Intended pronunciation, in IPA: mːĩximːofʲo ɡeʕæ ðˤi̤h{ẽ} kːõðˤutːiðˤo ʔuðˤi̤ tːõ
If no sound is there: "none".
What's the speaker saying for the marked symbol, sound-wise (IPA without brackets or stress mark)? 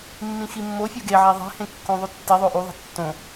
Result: ẽ